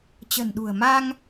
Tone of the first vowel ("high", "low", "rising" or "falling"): low